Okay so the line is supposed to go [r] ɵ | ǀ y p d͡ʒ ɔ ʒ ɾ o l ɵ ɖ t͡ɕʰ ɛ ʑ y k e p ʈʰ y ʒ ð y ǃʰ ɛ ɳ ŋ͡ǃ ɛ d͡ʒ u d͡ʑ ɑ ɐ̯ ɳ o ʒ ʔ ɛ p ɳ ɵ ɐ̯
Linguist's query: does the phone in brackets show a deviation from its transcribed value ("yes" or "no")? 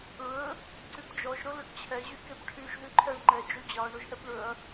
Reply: yes